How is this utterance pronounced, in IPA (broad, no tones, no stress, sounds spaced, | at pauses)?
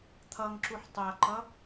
t̪ʰ ʌ ŋ ǁ u ħ tˤ a ǃ ʌ